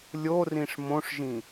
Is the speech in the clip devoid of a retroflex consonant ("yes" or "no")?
no